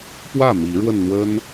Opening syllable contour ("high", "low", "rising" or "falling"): falling